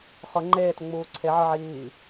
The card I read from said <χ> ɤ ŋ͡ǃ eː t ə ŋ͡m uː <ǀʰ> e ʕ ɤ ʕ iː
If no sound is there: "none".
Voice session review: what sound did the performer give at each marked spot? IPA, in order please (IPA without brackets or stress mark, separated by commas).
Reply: χ, ǀʰ